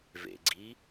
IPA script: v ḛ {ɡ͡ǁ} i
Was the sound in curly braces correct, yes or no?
no